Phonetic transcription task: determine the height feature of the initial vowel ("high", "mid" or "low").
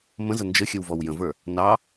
mid